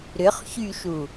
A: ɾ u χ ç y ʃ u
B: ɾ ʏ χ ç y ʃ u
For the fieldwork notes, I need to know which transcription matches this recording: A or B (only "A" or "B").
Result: B